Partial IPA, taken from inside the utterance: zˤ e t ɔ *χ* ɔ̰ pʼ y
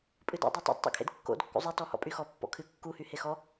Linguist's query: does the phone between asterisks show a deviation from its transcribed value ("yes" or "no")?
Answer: yes